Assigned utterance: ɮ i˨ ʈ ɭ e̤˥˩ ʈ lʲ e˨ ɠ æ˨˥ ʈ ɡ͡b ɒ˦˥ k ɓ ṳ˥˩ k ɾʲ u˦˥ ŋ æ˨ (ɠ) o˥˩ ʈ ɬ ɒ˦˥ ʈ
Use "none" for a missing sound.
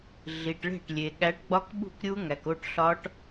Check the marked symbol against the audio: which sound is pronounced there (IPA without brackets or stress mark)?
k